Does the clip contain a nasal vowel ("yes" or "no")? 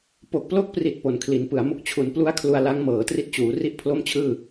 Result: no